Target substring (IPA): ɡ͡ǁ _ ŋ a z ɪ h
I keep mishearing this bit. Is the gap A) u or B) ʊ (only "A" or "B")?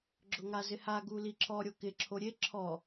B